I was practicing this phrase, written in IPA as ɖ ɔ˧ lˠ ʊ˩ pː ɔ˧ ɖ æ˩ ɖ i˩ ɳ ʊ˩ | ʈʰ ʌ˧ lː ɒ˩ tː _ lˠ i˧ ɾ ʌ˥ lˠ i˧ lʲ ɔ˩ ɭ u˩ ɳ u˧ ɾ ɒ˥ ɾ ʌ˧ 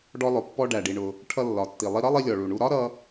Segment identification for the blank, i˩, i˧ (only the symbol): i˩